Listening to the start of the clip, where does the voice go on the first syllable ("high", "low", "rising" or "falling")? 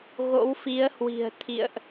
rising